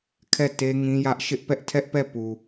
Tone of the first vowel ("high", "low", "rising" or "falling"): falling